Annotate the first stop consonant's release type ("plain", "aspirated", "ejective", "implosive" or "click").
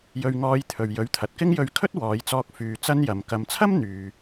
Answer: aspirated